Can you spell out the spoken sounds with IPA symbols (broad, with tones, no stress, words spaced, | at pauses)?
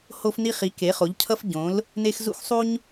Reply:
ho˦fni˦ χi˩˥ ke˩˥χo˩˥ʎcʰʌ˦f ɟõ˩˥l | ne˦x zṵ˦xsˤu˦ɲ